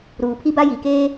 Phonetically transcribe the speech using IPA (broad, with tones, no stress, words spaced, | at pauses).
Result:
ɾuː˨pʰi˦ba˦ ji˨keː˦